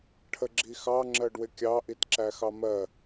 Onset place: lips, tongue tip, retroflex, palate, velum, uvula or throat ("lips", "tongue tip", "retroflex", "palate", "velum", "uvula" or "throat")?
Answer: retroflex